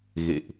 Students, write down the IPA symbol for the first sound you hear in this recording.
ɣ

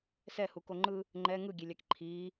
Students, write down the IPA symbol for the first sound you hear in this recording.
s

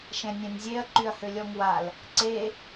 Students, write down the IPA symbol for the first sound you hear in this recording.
ʃ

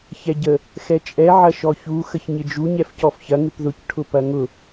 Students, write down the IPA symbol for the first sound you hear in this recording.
ç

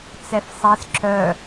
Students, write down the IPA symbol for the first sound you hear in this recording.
t͡s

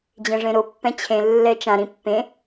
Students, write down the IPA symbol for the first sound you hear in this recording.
d͡ʑ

